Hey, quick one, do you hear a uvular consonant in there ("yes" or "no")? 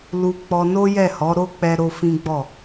no